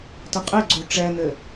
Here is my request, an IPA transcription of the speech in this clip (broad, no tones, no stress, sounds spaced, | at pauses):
t ɐ qʼ ɘ ɡ͡ǀ u ʈ͡ʂ ɛ n ɘ